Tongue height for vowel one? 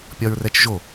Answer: low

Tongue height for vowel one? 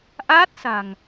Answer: low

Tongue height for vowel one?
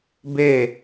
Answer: mid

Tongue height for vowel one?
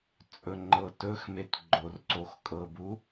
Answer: mid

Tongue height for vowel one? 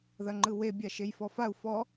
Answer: low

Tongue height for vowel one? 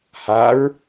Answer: low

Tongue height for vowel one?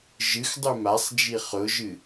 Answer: high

